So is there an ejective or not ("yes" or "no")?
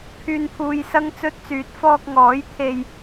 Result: no